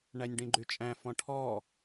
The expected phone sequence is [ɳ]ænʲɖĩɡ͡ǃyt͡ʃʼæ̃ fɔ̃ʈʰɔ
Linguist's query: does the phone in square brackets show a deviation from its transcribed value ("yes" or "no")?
no